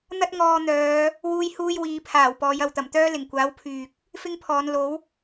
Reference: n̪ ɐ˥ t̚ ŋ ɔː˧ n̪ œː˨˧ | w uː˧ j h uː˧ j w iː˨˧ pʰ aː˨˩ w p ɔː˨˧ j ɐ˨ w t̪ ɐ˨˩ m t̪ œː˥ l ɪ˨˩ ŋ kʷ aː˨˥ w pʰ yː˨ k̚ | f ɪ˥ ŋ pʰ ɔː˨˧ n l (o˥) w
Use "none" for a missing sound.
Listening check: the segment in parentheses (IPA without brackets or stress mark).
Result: o˨˥